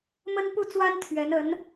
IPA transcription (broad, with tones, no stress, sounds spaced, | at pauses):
m ə˥ n p u˥˩ t͡s w a˥ n t̪ʰ ɥ ɛ˧˥ n ə˧˥ n